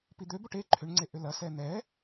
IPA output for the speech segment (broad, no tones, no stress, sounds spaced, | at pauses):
p i d̪ ø b o ʈ e ǃʰ ʏ ɳ ŋ͡ǀ e ʔ ʏ l ɐ s ɛ n̪ ɛ